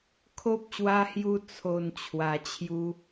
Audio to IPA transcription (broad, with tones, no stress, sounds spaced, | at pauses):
kʰ o˦ p̚ ɕ w a˦ h j u˦ t͡sʰ o˧ n t͡ɕʰ w a˧ t͡ɕʰ j u˦